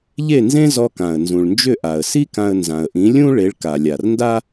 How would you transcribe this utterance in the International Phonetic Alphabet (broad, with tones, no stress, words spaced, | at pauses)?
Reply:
ʎe˥˩nzẽ˥ zɔ˧kã˩ə̯nzũ˩ɭnd͡ʒʏ˥˩ ʔa˩ə̯si˥kã˧ə̯ nzã˩ə̯ʔĩ˩˥lʲũ˥ ɭe˩˥ɭka˩lʲa˩r nda˥